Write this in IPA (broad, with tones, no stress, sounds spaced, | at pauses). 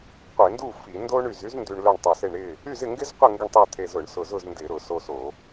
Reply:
qʷ e˧˩˧ n d u˥˨ f i˧˩˧ n d o˥ ɳ y˧ z y˥ z n d y˧ ɳ l œ˥˨ ɳ tˤ ʊ˧ s e˥˨ ɳ ɾ ɪ˥˨ | y˥˨ z ɪ˥˨ ŋ ɡ ɪ˥ z qʷ ɪ˥˨ ŋ ɡ ə˥˨ ɳ tˤ o˥˨ t̪ʰ e˧ z ʊ˧˩˧ ɳ s ʊ˧ z ʊ˥˨ z n d ɪ˧˩˧ ɾ ʊ˧˩˧ s o˧ s o˧˩˧